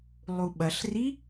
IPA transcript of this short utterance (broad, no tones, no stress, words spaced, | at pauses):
lˠuɓɐɬri